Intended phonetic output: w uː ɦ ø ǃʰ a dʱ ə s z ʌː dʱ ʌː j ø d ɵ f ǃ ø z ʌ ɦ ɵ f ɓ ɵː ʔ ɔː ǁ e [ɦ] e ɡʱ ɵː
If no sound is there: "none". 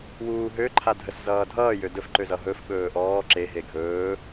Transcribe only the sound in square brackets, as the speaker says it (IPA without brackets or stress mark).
ɦ